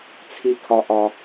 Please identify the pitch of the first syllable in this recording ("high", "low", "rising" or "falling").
high